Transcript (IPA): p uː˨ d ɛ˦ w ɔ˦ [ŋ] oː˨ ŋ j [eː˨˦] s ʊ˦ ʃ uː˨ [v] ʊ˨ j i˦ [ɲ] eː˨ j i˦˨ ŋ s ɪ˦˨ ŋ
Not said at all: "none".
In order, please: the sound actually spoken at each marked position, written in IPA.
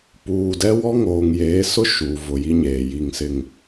ŋ, eː˨˦, v, ɲ

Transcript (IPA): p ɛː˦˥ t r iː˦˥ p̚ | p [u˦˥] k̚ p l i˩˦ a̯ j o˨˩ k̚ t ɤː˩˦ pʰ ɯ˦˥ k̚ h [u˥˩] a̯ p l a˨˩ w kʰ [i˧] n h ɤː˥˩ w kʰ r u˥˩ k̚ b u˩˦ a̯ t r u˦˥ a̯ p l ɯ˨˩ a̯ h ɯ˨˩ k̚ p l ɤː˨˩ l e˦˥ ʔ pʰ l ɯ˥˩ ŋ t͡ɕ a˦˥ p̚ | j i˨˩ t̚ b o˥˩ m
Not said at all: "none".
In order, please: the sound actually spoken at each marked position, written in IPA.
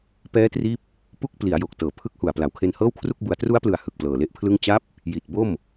u˥˩, u˨˩, e˧

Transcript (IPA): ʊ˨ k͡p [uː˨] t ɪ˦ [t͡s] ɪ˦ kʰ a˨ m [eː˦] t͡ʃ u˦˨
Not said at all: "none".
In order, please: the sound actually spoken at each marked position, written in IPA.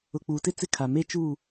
uː˨, t͡s, e˦

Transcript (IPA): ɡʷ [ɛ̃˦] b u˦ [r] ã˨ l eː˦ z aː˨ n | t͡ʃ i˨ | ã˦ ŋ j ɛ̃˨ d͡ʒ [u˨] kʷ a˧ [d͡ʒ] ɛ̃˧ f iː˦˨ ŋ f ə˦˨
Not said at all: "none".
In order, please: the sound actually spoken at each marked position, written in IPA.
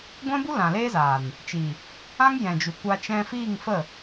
ɛ̃˦, l, u˨, t͡ʃ

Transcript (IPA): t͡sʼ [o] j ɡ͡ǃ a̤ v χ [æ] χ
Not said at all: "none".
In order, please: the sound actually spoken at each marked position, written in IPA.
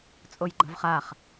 o, a

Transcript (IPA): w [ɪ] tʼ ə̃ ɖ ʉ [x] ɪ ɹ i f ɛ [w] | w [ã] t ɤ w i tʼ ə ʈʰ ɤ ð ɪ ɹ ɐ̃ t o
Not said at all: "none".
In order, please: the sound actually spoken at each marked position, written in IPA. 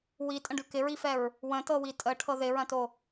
i, k, ɹ, ə̃

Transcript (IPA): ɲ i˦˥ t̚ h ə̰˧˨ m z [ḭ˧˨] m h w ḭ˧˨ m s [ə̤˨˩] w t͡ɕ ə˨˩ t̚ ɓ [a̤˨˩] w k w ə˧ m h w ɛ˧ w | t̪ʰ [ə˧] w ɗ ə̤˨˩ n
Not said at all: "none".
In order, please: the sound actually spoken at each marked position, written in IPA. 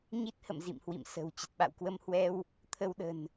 ḭ˧˨, ə̤˨˩, a̰˧˨, ə˧

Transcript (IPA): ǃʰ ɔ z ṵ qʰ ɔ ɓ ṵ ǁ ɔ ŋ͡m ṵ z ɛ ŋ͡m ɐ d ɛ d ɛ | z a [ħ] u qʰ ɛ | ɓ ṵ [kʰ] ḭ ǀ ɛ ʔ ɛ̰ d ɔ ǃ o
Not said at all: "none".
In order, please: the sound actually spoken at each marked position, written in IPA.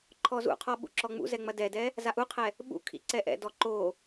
ʔ, kʰ

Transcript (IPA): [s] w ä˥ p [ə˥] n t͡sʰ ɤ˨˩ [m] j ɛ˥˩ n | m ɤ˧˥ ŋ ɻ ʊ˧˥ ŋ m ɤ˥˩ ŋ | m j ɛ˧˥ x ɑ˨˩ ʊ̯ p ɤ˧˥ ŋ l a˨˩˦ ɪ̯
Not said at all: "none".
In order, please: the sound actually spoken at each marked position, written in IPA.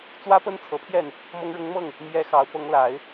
t͡s, ə˥, pʰ

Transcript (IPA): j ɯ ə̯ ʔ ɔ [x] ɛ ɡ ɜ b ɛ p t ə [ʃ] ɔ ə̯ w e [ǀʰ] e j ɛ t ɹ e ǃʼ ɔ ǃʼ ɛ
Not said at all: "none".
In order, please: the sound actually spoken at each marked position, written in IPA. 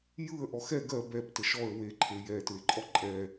x, ʃ, ǃʰ

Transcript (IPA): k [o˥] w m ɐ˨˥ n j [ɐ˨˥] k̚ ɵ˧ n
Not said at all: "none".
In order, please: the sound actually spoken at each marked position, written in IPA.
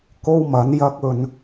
o˥, ɐ˥

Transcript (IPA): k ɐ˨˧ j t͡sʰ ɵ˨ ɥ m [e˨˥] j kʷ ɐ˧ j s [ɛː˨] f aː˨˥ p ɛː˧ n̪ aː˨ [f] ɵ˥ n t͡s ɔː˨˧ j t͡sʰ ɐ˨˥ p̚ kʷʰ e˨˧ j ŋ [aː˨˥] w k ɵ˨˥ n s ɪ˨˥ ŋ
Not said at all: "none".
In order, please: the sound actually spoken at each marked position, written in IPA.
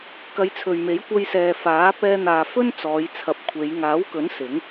e˨˥, ɛː˨, f, aː˨˥

